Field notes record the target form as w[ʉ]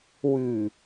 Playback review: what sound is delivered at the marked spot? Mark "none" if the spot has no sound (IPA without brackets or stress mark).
ʉ